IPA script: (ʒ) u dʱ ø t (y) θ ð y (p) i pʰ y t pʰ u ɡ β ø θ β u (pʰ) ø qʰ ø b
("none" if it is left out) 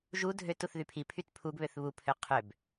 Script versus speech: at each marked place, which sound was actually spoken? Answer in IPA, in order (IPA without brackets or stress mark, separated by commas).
ʒ, u, pʰ, pʰ